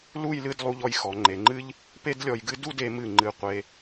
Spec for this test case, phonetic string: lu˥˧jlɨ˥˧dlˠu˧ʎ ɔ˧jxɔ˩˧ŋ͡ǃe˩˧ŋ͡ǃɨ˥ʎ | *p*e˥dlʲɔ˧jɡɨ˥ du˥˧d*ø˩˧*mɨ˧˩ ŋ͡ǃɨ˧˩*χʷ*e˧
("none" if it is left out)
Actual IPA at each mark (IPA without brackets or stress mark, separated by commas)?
p, e˩˧, qʷ